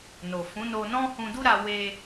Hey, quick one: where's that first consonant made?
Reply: tongue tip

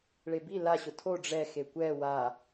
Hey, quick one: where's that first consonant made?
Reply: retroflex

